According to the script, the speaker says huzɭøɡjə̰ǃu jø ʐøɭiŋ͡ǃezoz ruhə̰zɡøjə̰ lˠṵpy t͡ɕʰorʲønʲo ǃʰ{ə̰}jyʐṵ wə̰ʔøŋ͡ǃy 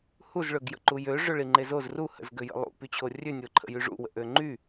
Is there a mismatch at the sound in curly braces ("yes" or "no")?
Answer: no